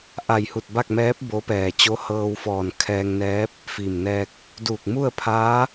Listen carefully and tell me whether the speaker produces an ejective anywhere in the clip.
no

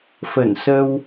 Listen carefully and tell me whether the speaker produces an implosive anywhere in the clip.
no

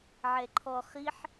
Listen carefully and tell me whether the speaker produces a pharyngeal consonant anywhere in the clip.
yes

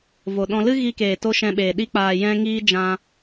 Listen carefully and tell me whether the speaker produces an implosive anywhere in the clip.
yes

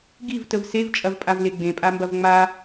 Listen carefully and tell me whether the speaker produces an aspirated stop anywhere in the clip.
no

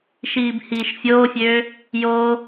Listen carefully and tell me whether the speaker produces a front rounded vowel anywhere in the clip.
yes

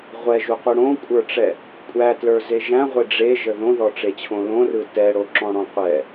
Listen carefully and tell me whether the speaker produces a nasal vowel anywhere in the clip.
yes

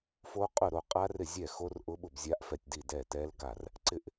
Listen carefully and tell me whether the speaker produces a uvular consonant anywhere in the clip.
yes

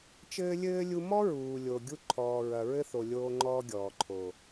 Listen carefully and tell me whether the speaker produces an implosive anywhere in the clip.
no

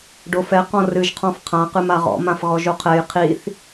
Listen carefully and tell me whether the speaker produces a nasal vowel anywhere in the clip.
yes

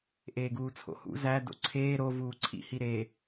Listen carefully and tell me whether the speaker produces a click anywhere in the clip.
yes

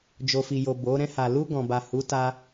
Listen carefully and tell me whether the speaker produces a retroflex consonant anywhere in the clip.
no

